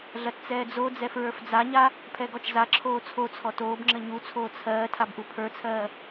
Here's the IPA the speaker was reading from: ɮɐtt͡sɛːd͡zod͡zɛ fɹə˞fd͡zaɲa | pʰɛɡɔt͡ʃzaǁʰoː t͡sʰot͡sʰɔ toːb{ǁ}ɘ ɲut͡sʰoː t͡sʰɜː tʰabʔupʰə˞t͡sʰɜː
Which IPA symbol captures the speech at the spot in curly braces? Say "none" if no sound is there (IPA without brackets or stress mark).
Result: ŋ͡ǁ